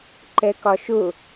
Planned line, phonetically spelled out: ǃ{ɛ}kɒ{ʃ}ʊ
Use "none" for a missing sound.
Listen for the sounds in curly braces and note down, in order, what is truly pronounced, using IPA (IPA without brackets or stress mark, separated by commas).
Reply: ɛ, ʃ